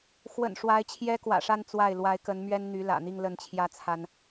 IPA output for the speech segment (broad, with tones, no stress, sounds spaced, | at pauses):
x w ə̰˨˩ n ʂ w a˧˥ ɪ̯ t͡ɕʰ j ɛ˥ k w ä̰˨˩ ʂ a˥˧ n t͡s w a˥˩ ɪ̯ l w a˧˥ ɪ̯ k ə˧˥ n m ɥ ɛ˥ n n̪ y˧˥ l ä̰˨˩ n̪ i˥˧ ŋ l ə˥˩ n t͡ɕʰ j ä˥ t͡sʰ a˥ n